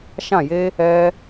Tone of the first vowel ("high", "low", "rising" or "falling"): falling